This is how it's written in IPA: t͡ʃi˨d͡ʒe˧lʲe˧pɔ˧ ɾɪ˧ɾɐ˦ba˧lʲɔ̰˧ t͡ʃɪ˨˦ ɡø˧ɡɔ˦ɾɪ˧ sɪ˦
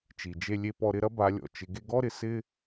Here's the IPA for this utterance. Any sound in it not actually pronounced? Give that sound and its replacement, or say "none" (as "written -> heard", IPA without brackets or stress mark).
ø˧ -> e˧